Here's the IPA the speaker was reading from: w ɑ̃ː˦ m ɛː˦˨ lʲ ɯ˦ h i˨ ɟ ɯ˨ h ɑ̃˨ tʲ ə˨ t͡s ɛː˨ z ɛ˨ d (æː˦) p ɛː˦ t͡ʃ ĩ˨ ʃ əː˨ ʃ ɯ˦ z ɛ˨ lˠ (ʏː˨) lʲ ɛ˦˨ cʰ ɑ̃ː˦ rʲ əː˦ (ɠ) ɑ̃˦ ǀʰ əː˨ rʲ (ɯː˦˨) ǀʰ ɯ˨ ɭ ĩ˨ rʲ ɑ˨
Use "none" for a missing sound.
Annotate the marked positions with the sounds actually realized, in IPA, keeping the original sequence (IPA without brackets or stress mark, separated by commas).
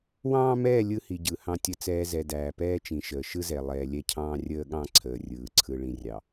æː˨, ɛː˨, ɠ, ɯː˨